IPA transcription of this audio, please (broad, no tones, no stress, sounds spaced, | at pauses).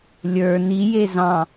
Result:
lʲ ə˞ n i j e z ɑ̃